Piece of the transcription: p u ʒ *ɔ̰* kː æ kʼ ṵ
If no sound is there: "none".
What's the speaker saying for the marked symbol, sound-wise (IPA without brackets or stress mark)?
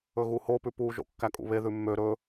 o̰